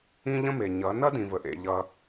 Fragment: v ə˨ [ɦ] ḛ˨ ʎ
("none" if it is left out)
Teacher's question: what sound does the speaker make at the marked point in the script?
ʔ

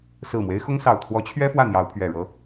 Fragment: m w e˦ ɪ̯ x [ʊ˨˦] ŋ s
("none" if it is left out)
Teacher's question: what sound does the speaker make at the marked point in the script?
ʊ˦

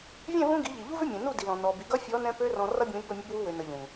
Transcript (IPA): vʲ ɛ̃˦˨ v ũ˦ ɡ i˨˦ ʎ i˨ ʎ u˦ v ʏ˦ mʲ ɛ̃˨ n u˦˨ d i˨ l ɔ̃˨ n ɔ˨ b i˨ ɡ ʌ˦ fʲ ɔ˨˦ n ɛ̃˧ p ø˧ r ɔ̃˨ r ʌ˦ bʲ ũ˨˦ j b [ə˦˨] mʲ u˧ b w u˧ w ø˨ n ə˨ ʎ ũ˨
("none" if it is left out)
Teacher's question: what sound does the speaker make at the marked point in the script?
ə˦˨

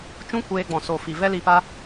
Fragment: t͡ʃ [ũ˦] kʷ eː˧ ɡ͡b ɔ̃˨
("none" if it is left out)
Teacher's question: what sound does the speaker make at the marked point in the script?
ũ˦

